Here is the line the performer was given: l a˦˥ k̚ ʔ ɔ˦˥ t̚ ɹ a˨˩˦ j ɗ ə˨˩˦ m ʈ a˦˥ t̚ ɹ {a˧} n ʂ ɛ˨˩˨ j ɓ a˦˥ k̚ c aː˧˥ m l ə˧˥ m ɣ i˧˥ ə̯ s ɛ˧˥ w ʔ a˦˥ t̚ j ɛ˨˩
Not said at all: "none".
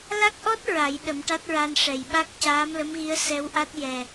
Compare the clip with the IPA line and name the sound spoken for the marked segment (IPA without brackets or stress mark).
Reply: a˧